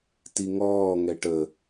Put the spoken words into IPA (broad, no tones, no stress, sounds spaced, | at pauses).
t i ŋ ɔː ŋ ɛ ʈ ə